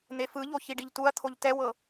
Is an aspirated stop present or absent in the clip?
present